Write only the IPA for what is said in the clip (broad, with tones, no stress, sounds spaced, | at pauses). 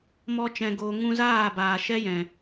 m ɔ˦ t͡ʃ ɛ̃˧ ɡ oː˧ ŋ ũ˧ z aː˦˨ b aː˨ ʃ ɛ˦ j ɛ̃˨